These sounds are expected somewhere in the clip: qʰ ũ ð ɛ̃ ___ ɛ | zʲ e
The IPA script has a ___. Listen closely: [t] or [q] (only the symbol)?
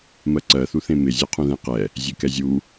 q